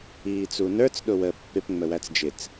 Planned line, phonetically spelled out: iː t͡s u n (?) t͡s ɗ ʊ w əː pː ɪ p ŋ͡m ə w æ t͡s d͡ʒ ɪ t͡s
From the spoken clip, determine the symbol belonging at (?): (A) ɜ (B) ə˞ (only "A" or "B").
B